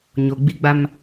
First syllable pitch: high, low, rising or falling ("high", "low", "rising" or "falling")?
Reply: low